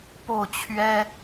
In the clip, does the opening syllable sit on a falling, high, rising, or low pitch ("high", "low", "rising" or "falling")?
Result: falling